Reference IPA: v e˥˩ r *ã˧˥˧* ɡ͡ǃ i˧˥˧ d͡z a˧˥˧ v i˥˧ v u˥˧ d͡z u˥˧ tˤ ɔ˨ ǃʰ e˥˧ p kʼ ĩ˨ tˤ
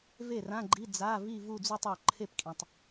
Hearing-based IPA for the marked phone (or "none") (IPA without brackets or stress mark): ã˧˥˧